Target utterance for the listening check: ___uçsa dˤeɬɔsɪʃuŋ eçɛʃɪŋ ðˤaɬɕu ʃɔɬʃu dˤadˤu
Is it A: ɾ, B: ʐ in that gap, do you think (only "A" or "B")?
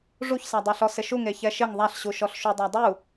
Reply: B